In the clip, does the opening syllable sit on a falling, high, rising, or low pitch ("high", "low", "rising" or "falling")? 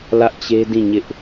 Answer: high